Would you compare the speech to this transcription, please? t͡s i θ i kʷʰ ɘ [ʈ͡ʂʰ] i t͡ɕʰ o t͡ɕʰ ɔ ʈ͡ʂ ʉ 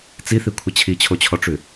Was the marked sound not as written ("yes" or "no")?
yes